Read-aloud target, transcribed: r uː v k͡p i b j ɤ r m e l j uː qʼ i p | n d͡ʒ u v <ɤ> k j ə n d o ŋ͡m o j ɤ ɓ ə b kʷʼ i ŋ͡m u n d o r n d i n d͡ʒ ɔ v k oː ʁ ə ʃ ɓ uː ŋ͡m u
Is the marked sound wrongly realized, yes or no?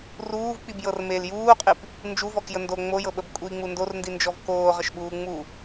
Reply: yes